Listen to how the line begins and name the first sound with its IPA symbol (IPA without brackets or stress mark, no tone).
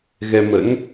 ɣ